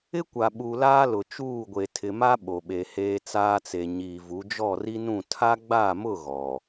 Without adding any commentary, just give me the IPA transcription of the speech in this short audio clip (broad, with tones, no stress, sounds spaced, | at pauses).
ɪ˦ kʷ a˨ ɓ u˨ l aː˦ l ʊ˨ t͡ʃ uː˦˨ ɡʷ e˨ tʰ ɪ˨ m a˦ ɓ o˨ ɓ e˨ h eː˦ t͡s aː˦ t͡s e˨ ɲ iː˨ v u˨˦ d͡ʒ ɔ˦˨ r i˦ n ũ˦˨ tʰ a˦ ɡ͡b a˦˨ m ʊ˦˨ ɣ ɔ˨